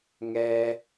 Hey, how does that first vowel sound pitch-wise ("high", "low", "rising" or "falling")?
high